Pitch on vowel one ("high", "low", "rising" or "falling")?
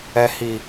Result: low